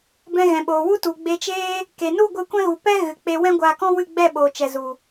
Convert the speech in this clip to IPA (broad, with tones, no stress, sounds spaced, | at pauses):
b ɛ̃˧ ɣ ɛ̃˨ ɓ oː˨ w u˦ t u˨ ɡ͡b e˧ t͡ʃ eː˦ | k e˨ n u˦˨ ɡʷ ɨ˧ kʷ ɛ̃˦ ɣ u˨ p ɛ˦ ɣ ɨ˨ k͡p e˧ w ɛ̃˦ ɡʷ aː˧ k ɔ̃˦ w ɨ˦˨ ɡ͡b ɛ˦˨ ɓ oː˨ t͡ʃ ɛ˨ z u˨